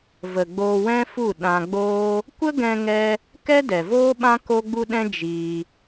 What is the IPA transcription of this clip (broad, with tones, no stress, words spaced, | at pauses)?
və˨ɡ͡boː˧wɛ̃˦fu˦˨ ɗã˧ɡ͡boː˦ | kʷə˦ɡɛ̃˧ŋɛ˧ | kɛ˦dɛ˨voː˦ɓã˦ ko˦ɡ͡bu˦ɗɛ̃˦ d͡ʒiː˧